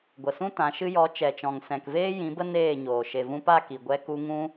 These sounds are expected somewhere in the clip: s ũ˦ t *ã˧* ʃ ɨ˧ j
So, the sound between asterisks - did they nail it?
no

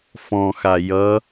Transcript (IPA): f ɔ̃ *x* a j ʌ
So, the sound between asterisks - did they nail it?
yes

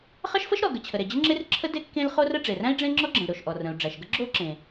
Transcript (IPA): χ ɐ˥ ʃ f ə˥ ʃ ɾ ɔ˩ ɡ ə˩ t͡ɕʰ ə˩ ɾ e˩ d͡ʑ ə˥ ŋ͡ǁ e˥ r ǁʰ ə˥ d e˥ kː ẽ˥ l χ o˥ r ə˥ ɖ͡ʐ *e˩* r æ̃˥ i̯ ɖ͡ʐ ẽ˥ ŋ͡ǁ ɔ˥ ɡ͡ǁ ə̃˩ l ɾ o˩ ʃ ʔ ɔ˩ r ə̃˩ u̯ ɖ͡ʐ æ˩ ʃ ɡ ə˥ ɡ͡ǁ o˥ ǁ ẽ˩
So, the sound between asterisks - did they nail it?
yes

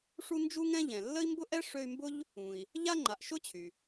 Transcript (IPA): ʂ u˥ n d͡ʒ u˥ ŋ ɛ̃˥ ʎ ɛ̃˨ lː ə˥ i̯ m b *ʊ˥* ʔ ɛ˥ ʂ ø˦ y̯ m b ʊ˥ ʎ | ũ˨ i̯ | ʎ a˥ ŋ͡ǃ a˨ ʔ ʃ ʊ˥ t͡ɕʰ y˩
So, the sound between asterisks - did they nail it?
yes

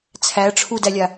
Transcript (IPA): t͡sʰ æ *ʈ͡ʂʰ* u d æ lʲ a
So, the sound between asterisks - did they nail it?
yes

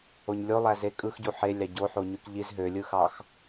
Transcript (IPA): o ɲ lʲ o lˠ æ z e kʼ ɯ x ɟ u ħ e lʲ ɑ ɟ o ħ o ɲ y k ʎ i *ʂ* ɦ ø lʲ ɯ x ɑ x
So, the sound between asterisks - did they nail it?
no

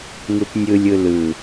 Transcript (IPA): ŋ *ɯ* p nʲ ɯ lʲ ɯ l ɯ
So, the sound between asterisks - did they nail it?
yes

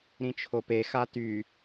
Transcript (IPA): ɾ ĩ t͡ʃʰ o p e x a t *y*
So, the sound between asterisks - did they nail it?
yes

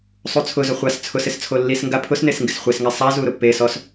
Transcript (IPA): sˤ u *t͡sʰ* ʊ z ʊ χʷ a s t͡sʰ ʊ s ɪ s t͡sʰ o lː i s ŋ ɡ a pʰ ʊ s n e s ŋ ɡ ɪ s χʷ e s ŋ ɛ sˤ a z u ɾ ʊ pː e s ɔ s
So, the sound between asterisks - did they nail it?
yes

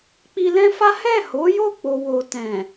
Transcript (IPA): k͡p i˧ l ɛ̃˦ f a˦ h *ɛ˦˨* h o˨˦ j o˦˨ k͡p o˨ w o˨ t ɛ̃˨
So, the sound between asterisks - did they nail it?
yes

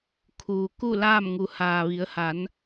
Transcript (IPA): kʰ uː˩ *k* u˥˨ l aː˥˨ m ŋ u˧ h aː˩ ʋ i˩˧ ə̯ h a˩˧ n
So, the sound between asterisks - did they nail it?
yes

